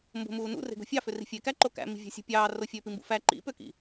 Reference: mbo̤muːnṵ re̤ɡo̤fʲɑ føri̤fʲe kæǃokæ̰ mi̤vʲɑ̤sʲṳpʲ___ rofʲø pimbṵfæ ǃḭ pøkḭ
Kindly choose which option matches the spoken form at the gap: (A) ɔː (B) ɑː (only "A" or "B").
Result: B